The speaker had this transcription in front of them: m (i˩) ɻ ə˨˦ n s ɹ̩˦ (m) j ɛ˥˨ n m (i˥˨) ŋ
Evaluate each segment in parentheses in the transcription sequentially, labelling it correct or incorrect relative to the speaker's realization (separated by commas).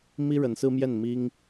incorrect, correct, incorrect